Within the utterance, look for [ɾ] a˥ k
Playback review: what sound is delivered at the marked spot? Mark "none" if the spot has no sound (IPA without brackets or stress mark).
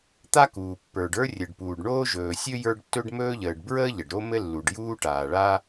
t̪